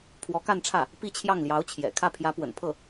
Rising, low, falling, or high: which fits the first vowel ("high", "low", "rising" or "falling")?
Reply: rising